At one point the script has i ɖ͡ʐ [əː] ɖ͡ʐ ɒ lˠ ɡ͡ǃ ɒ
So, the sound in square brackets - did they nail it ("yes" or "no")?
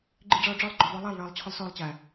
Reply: no